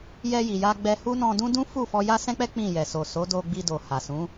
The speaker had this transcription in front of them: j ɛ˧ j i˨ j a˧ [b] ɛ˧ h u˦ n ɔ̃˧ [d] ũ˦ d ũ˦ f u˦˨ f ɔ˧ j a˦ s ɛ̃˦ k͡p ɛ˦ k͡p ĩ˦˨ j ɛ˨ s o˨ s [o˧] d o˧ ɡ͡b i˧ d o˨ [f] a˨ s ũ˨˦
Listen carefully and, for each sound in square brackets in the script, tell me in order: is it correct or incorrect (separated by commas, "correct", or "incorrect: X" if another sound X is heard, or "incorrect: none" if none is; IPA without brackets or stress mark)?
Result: incorrect: ɡ͡b, correct, incorrect: o˨˦, incorrect: h